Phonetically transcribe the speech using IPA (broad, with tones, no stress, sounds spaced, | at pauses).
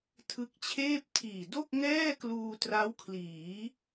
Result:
tʰ ɯ˦˥ k̚ t͡ɕʰ eː˥˩ p̚ tʰ iː˨˩ d o˥˩ k̚ ŋ ɛː˥˩ k l uː˧ t r a˦˥ w kʰ l iː˩˦